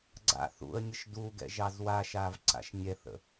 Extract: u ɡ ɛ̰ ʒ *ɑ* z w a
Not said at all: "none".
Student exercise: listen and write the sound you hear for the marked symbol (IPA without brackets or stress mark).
ɑ